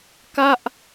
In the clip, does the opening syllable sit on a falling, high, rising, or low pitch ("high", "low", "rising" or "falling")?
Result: falling